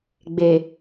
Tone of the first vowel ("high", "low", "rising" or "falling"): low